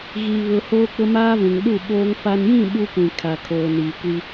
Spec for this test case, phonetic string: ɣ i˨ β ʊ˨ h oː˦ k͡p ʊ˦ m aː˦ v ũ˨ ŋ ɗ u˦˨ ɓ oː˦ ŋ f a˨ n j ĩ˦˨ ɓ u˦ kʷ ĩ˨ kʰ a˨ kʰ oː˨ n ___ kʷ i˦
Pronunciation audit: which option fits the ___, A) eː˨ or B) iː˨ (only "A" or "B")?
B